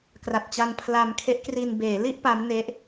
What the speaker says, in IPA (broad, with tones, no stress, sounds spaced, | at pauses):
k r a˨˩ t̚ t͡ɕ a˧ n pʰ l a˧ m kʰ e˦˥ ʔ k r i˧ n b eː˩˦ l i˥˩ ʔ p a˦˥ m n e˦˥ ʔ